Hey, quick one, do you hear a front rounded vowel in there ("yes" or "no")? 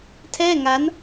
no